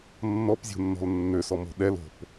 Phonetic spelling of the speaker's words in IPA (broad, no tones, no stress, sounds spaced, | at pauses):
nː ɔ p zʲ o̤ nː ɔ̤ l nː ø s ɔ m o̤ ɗ ɛ l o̤ p